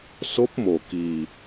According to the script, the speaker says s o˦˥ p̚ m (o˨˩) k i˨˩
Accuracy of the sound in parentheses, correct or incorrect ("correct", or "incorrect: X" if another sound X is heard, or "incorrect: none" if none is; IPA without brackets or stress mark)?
correct